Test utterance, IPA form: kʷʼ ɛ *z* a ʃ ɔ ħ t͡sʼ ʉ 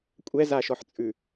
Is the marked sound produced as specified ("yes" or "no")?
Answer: yes